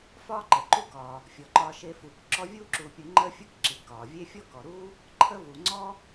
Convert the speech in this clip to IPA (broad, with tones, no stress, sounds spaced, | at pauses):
f ɒː˦ ǃ ə˩ ǃ u˦ k ɒː˩ | fʲ ɔ˩ ǃ ɒː˨ ʃ eː˨ f uː˩ k ǁ ɔ˦ vʲ uː˥ ǁ uː˨ pʲ u˨ ŋ͡ǃ əː˦ fʲ u˦ k ǁ i˩ k ɒː˩ vʲ e˥ fʲ ɔ˥ k ɔ˩ ɾ uː˥ | ǃʰ əː˦ v uː˩ ŋ͡ǀ ɔ˦